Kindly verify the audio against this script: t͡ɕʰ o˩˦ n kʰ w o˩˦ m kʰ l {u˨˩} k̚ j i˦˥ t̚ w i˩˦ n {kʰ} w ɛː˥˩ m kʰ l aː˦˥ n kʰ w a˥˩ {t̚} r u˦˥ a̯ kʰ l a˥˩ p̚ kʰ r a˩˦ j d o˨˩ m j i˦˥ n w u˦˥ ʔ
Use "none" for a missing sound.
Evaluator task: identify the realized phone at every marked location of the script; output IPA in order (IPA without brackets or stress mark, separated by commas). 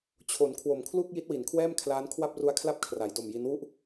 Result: u˥˩, kʰ, p̚